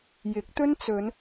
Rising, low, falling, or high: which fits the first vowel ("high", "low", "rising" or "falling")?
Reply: rising